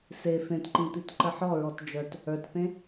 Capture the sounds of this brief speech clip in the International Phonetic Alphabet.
s e f ẽ t ǃ ĩ t̪ i t ǃ ə ħ ɔ ɹ ɔ t d͡ʒ œ t | ə˞ t θ ẽ

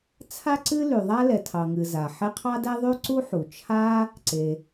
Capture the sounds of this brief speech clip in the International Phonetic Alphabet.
t͡sʰ a˥ ǀ ɨ˥ l y˩ ðˤ a˥ l ɛ˩ tʰ ɑ˩ ŋ ɨ˩ z a˩ ħ e˥ qʰ ɑ˥ d ɛ˥ ðˤ y˥ ǀ u˥ ħ u˩ t͡ʃʰ a˥ | ǀ e˩

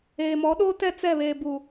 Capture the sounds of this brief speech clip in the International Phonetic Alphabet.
eː˨ m ɔ˨˦ ɗ oː˦ t ɛ˦˨ t͡s ɛ˦˨ β eː˨ b u˨

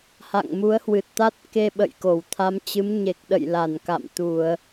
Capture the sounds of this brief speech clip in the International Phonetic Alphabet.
h a̰˧˨ ŋ m u˨˦ ə̯ h w ɨ˨˩ t̚ t̪ a˦˥ t̚ k e˧ ɓ ə̰˧˨ j k o˧˩ w t̪ʰ a˨˦ m t͡ɕ ɨ˨˦ m ɲ e˨˩ k̚ ɗ ə̰˧˨ j l a˧˩ n k a̰˧˨ m t̪ u˧˩˨ ə̯

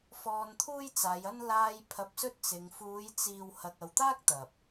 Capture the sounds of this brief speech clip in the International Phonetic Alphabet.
f ɔː˧ n t̪ʰ uː˥ j t͡s aː˨˧ j ɐ˥ n l aː˧ j pʰ ɐ˧ p̚ s ɵ˥ t̚ t͡s ɪ˨˧ ŋ f uː˨˧ j t͡s iː˨ w h ɐ˨ k̚ ɐ˨ w t̪ aː˥ k̚ t̪ ɐ˨ p̚

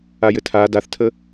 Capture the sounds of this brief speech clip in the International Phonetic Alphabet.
a j ɘ tʰ a d a θ tʰ ə

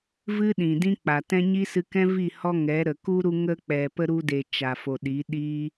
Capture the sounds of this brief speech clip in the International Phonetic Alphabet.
v ɨ˦ ɗ ĩ˨ d ĩ˦ k͡p a˨ t ɛ̃˦ ɲ i˦ s ɨ˧ k ɛ̃˦ v i˦˨ h ɔ˦ ŋ ɛ˨˦ ɾ ə˨ k u˦ ɾ u˧ ŋ ə˧ k͡p ɛ˨ p ə˧ ɾ u˧ d e˨ t͡ʃ a˨ f o˨ ɗ i˨˦ ɗ i˦

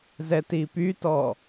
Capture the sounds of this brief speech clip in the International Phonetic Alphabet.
z ɛ t i p y t ɔ

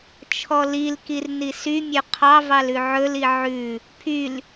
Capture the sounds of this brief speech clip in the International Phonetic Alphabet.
t͡ʃʰ ɔ l i l k i r n i s y mʲ ɵ qʰ ɑ v ɑ l ʉ ʕ ɵ l i ʕ ʉ | pʰ y l

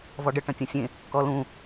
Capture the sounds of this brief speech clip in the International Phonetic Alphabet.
v ɔ ɖ ə ʈ ɐ̃ tʲ ɐ̃ sʲ ẽ | k ɔ l ũ

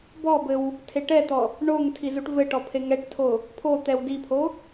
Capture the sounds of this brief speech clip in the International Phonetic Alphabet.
b ɔ b ɘ w | tʰ e ʈ ɛ t̪ ɔ | ɳ o ŋ tʰ i z u ʈ v ɘ ʈ ɔ pʰ e ŋ ɛ ʈ tʰ o | pʰ o t̪ ɛ w d i pʰ o

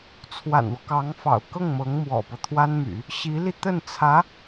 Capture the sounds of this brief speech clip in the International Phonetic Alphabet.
t͡sʰ w a̰˨˩ n w ɔ˦ k ɑ˧˥ ŋ f ɑ̰˨˩ ʊ̯ k ɤ˥˩ ŋ m ɤ˧˥ ŋ m w ɔ̰˨˩ p ɤ˦ t̪ʰ w a˥ n m y̰˨˩˦ | ɕ i˧˥ l i˧ t̪ ə˥˩ n t͡sʰ ä˧˥

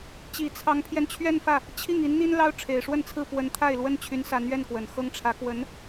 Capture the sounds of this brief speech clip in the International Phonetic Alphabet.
t͡ɕ i˨˩ t͡sʰ ɑ˧˥ ŋ pʰ j ɛ˧ n t͡ɕʰ ɥ ɛ˥˧ n f ä˥˩ | t͡ɕʰ i˥˩ ŋ i˧˥ n n̪ i˥ n l ɑ˥ ʊ̯ ʈ͡ʂʰ e˨˩ ɪ̯ ʂ w ə˥˧ n t͡sʰ ɹ̩˥˩ p w ə˧˥ n t̪ʰ a˥˩ ɪ̯ l w ə˥ n t͡ɕʰ y˧˥ n s a˧˥ n ɥ ɛ˥˩ n k w ə˨˩ n x ɤ˥ ŋ ʈ͡ʂʰ ä˧˥ k w ə˧˥ n

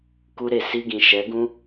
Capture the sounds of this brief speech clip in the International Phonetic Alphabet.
k u˦ ɾ e˦˨ s i˧ ɡ ĩ˨ ʃ ɛ˨˦ ɡ ũ˦

